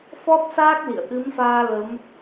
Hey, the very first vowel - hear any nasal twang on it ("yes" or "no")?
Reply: no